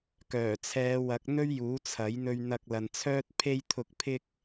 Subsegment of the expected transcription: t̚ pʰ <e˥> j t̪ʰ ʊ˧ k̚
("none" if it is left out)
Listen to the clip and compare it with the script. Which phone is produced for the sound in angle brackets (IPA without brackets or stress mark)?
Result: e˥